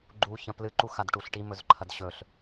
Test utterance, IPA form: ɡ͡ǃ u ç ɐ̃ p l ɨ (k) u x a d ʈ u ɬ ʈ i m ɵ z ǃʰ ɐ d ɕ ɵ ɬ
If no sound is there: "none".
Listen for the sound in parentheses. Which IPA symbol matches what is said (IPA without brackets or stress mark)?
ǃ